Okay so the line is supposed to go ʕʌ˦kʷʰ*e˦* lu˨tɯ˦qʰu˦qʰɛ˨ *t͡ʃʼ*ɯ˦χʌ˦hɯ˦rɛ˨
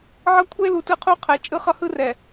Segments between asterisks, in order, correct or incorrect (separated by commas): correct, correct